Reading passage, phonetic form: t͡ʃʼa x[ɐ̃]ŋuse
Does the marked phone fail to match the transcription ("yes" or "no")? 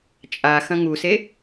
no